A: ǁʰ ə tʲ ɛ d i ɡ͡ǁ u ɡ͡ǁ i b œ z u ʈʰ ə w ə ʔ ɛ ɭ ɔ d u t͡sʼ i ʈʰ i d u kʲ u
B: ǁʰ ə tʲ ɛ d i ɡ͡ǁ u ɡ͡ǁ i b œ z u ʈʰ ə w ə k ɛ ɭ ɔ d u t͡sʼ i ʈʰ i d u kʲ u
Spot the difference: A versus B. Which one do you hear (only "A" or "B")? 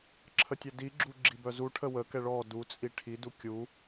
B